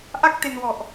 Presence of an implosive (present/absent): absent